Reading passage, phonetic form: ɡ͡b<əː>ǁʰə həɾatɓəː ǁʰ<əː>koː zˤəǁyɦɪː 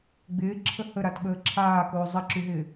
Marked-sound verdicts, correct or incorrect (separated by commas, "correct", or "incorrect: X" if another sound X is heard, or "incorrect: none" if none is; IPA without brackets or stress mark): incorrect: ɪː, incorrect: aː